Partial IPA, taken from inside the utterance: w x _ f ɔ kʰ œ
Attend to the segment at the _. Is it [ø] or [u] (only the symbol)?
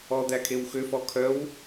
ø